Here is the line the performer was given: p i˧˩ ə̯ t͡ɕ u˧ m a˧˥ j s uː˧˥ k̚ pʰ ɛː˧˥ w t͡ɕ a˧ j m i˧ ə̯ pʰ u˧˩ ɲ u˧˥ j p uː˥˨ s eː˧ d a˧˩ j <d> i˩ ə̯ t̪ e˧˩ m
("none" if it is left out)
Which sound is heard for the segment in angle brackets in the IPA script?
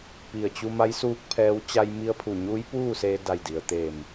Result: d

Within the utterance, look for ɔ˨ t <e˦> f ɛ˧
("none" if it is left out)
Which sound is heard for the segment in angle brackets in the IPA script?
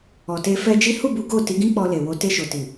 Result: e˧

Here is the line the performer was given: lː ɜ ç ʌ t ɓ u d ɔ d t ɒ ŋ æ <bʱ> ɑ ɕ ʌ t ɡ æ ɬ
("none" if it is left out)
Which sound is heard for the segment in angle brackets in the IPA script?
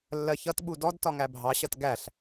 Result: bʱ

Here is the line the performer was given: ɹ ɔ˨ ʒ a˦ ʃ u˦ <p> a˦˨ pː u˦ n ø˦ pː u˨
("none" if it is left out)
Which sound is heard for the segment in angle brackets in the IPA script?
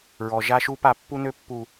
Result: p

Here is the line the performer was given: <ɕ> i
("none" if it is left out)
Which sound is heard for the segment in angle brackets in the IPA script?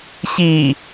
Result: ɕ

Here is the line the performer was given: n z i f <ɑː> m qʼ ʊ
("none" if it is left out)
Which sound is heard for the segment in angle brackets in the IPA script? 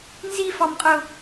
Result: ɑ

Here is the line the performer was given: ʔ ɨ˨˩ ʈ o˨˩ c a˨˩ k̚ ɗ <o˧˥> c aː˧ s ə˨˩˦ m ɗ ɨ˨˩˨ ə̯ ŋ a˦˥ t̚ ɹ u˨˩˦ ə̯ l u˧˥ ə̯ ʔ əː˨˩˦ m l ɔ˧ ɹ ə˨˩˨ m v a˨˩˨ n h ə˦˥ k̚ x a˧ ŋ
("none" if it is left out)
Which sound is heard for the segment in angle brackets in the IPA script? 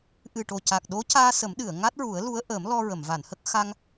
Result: o˧˥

